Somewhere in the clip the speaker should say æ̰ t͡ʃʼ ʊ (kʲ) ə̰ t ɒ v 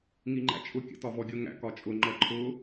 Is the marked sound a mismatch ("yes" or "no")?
no